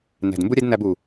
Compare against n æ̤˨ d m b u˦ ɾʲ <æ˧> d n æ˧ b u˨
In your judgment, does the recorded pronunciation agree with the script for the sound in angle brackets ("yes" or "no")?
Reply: no